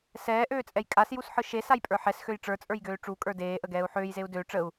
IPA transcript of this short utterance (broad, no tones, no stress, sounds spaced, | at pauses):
s ɛː ʔ øː t͡sʼ ɛ j kʼ a s j u s ħ ɯ ʃ e s a j pʼ ə˞ ħ ɛ s x ø j ʈ͡ʂ ə˞ t͡sʼ ə˞ j ɡ øː ʈ͡ʂ u kʼ ə˞ d eː ʔ ə ɡ ɛː u̯ ħ øː j z e u̯ d ø ʈ͡ʂ ə u̯